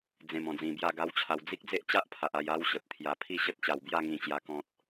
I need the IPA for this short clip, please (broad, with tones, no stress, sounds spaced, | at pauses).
d͡z ẽ˨˩ m ɔ̃˨˩ d͡z ĩ˨˩ b j a˥˧ ɡ a˦ w t͡ɕʰ a˧ w d͡z i˦ k̚ d͡z e˦ ʔ t͡ɕ a˦ ʔ pʰ a˨ ʔ a˧ j a˦ w ɕ ə˨ p̚ t̪ʰ j a˧ pʰ i˥˧ ɕ ə˦ t̚ t͡ɕ a˧ w b j a˥˧ ŋ ĩ˧ t͡ɕ j a˦ k ɔ̃˦ t̚